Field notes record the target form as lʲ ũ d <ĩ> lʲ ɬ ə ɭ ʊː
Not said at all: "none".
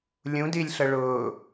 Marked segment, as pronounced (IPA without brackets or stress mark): i